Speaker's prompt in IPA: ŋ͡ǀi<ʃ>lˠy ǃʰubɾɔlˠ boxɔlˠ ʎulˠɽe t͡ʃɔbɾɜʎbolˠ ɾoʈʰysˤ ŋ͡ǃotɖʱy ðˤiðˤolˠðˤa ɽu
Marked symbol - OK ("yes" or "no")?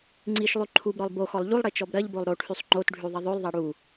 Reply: yes